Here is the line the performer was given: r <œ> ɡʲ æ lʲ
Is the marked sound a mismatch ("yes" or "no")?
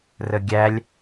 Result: yes